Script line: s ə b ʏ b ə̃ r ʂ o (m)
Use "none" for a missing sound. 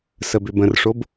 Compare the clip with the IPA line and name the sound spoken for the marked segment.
b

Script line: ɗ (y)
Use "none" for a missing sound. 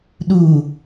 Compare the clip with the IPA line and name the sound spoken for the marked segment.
u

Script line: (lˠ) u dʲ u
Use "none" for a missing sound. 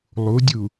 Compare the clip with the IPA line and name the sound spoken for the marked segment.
lˠ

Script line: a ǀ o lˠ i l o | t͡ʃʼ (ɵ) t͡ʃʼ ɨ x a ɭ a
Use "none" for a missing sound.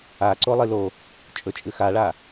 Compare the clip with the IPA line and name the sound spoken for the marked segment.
ɵ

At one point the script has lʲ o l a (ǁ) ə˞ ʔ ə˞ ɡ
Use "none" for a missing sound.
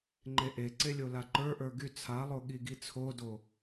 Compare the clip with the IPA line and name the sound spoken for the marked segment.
ǃ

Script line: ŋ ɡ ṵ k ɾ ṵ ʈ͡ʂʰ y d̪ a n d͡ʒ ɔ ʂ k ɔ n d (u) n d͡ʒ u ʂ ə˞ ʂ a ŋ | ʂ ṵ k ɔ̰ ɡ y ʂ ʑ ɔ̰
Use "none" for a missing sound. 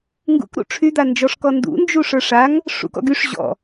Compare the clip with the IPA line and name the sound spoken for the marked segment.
ṵ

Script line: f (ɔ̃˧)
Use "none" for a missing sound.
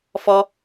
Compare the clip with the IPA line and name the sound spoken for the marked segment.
ɔ˧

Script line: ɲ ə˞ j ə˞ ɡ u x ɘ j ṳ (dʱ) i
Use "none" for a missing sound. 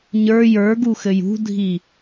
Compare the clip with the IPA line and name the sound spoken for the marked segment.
dʱ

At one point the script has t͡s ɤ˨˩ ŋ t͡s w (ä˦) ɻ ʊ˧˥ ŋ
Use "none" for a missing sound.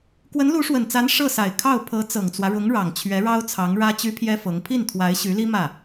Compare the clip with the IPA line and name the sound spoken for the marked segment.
ä˦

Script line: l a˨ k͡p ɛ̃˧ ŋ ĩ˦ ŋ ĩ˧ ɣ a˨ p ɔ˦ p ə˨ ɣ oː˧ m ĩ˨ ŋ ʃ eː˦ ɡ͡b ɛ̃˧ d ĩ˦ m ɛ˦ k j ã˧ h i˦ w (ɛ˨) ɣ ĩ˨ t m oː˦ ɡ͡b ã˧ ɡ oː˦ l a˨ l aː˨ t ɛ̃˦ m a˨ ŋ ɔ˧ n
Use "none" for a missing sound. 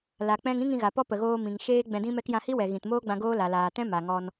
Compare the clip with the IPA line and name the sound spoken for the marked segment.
ɛ˨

